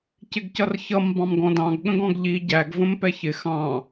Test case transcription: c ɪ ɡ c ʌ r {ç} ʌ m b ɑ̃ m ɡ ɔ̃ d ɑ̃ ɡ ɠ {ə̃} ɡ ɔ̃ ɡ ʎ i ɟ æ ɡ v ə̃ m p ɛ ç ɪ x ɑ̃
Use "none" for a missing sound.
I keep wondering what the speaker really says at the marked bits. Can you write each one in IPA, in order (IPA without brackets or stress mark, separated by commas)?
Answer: ç, ə̃